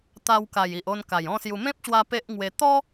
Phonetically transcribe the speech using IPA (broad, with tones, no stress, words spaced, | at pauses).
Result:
t̪a˧wka˨˩ji˨ʔ o˧nka˨˩jɔ̃˥˧sju˧ mẽ˦p̚ɕwa˧ pe˦ʔŋwe˧ t̪ɔ˦